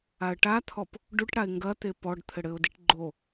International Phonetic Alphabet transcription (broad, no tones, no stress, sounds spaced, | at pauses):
a ə̯ ʈ a t̪ʰ ɔ p | ɖ u ʈ ɽ a ɪ̯ ŋ ɡ ɐ t̪ e p ɔ ɖ t̪ʰ ɘ ɽ ɘ ʊ̯ d i ʈ ɡ͡ǃ o